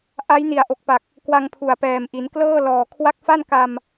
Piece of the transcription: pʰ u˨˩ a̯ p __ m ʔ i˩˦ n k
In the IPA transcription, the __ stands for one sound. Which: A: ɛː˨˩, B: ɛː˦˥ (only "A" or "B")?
A